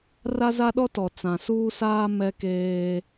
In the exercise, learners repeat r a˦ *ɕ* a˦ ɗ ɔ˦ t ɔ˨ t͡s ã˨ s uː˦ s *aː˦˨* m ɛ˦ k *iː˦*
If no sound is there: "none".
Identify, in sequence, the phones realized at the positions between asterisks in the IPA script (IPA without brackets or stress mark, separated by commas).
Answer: z, aː˦, eː˦